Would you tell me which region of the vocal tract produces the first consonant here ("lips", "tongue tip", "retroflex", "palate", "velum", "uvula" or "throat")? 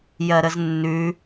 palate